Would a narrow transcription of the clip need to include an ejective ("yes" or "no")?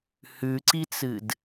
no